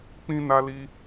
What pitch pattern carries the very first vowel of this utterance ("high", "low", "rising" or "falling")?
high